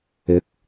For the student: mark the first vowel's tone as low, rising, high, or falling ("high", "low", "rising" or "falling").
rising